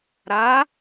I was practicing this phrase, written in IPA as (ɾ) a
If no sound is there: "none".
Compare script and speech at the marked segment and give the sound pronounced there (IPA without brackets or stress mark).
ɾ